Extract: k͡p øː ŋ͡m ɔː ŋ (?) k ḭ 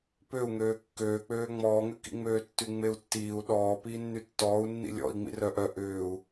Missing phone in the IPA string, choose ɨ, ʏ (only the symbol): ʏ